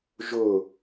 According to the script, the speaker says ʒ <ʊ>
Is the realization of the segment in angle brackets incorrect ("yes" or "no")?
no